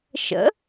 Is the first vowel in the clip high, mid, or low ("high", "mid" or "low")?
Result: mid